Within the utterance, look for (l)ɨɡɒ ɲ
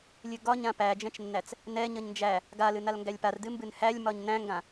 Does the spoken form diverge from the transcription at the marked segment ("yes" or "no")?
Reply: yes